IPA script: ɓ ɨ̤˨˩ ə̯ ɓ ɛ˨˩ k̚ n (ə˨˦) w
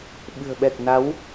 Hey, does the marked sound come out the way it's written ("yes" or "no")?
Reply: no